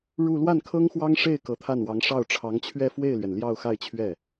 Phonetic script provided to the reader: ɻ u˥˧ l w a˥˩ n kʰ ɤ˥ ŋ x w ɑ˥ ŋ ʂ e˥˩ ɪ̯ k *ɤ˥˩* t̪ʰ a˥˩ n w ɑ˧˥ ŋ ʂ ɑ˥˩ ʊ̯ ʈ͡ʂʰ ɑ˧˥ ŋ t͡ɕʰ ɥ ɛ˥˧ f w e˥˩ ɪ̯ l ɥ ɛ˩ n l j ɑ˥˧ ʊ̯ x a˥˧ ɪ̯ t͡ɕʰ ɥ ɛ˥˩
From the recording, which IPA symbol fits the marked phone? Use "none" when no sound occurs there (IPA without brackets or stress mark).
ɤ˧˥